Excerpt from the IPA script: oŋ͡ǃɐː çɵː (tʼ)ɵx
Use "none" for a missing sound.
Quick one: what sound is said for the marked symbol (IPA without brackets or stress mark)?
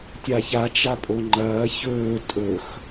tʼ